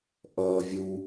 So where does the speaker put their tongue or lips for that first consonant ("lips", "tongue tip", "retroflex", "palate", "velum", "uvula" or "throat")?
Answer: throat